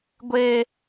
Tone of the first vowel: high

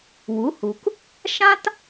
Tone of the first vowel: rising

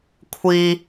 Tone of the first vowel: high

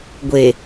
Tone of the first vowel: low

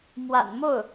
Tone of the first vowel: low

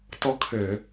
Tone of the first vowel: falling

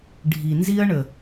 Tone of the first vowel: low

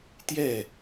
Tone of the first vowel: falling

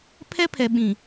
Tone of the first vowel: high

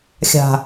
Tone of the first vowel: low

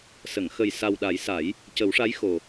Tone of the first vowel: low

